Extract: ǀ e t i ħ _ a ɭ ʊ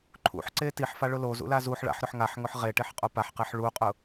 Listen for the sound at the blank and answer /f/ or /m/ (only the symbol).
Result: f